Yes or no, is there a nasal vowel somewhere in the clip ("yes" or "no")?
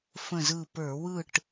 yes